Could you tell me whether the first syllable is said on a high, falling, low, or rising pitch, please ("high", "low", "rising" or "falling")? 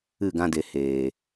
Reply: falling